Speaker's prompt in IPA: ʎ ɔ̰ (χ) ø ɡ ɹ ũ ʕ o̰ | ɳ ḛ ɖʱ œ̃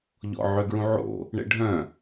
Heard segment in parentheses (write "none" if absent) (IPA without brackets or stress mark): ʕ